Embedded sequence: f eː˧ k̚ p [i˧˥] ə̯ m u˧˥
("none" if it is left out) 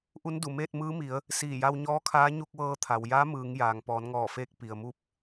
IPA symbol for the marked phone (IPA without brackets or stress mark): i˩